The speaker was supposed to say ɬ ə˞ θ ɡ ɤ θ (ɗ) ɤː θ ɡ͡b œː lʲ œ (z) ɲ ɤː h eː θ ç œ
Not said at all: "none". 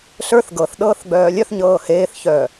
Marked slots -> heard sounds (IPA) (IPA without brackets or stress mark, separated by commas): ɗ, θ